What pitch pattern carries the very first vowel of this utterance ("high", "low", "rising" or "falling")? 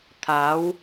rising